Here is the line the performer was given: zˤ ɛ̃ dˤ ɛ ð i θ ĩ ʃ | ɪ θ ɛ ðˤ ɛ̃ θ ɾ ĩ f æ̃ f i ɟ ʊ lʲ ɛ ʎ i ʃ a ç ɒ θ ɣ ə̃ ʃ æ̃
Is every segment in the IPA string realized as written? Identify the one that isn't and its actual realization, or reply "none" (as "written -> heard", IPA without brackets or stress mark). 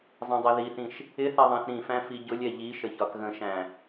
a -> ə